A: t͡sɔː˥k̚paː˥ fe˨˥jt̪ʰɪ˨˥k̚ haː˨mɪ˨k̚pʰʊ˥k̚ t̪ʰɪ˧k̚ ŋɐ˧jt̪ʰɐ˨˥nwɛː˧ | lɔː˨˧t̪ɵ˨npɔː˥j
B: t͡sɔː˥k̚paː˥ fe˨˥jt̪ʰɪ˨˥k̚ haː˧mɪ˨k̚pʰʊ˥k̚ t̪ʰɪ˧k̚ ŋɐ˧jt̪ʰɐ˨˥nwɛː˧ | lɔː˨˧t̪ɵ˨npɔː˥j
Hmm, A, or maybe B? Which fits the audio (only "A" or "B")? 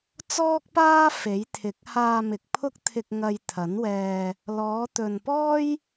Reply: B